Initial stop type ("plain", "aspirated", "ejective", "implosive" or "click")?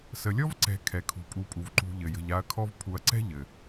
click